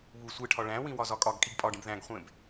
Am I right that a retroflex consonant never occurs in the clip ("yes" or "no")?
no